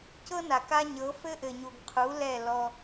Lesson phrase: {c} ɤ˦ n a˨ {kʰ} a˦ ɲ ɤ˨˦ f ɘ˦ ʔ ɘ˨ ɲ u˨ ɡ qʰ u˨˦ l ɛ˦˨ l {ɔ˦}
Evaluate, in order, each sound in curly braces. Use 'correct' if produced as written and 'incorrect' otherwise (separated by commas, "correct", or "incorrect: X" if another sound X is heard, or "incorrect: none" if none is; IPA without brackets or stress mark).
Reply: correct, incorrect: k, correct